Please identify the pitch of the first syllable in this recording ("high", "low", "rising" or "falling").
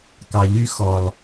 low